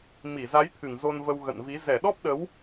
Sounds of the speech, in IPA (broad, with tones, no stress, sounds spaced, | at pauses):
m i˧˩ z a˨˦ j t̪ʰ ɨ˧˩ ŋ z o˧ n v ə˧ w ɣ ə̰˧˨ n v i˨˦ z ɛ˧˩ ɗ ɔ˦˥ p̚ ɗ ə˨˦ w